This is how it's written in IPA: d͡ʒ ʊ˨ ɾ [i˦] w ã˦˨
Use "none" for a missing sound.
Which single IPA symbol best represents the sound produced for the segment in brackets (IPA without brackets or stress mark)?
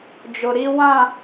i˦